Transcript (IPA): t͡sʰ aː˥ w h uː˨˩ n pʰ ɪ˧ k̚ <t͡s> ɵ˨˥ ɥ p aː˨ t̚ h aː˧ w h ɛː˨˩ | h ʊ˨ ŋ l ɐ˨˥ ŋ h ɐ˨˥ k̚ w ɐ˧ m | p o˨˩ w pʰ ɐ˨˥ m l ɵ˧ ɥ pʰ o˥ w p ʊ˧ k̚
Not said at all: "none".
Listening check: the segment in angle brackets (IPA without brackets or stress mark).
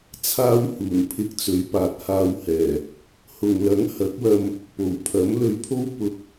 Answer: t͡s